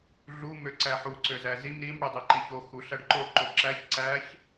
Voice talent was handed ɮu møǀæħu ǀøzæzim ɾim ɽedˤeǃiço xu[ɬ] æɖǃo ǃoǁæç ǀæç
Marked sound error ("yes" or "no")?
no